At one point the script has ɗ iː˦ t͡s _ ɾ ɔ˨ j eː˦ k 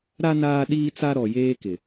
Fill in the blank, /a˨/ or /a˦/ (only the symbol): a˦